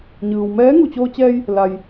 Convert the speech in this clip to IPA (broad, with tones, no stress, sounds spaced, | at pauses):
ɲ ɯː˩ w m ɛː˧˥ ŋ u˧˩ t͡ɕ oː˧ t͡ɕ ɛː˧ j | l a˩ j